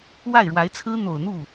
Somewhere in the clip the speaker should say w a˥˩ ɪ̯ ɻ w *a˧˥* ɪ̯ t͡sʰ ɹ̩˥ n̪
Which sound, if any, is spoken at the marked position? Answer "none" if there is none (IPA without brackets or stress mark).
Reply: a˧˥